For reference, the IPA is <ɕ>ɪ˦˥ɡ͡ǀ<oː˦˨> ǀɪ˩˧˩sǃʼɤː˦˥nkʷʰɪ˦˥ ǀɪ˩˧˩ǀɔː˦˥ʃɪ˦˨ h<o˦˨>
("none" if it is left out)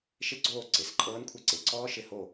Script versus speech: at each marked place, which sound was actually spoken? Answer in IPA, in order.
ʃ, oː˦˨, o˦˨

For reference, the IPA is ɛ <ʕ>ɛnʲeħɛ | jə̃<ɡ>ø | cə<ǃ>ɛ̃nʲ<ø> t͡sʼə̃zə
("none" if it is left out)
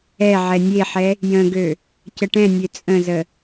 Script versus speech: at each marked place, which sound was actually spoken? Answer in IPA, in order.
ʕ, ɡ, ʈ, ø

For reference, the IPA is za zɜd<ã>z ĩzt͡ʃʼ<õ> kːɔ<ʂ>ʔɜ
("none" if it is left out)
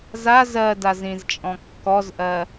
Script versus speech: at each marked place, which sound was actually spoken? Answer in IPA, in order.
a, ɔ̃, z

